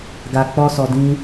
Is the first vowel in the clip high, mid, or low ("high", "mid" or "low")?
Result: low